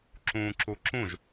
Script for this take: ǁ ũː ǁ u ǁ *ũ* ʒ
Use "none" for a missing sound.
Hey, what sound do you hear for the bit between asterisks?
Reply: ũ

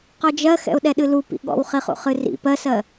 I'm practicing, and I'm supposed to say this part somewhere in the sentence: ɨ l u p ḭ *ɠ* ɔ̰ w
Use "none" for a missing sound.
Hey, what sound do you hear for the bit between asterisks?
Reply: ɠ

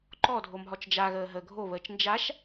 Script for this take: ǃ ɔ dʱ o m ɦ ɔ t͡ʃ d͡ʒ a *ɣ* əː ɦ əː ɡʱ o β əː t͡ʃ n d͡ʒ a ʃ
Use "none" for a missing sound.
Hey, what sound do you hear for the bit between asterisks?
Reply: ɣ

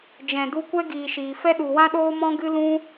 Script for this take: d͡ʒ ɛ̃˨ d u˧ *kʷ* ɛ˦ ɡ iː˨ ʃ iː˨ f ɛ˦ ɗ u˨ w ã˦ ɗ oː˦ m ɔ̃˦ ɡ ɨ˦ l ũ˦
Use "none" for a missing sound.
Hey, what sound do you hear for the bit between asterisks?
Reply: kʷ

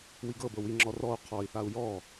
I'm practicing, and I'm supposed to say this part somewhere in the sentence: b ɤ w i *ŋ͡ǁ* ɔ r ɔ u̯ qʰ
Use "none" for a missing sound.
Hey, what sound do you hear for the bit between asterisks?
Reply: ŋ͡ǁ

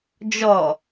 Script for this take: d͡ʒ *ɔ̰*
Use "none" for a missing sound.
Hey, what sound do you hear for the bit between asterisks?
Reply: ɔ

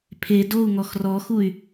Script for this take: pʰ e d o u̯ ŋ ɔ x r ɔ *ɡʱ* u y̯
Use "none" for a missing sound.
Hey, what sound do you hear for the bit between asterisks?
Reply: x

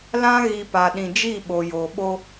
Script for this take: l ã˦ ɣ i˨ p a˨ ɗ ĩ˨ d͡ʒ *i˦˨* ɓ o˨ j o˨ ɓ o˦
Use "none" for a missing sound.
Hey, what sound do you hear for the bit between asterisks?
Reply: i˦˨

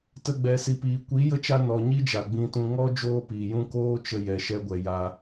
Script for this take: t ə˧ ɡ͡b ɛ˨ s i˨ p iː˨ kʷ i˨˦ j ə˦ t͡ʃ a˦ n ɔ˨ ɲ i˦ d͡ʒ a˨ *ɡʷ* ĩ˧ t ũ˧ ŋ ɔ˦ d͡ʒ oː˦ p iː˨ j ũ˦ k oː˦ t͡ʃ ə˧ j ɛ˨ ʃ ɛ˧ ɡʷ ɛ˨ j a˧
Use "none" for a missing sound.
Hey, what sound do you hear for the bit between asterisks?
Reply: ɡ͡b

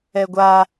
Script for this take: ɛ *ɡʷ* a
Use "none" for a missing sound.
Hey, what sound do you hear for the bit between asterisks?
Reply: ɡʷ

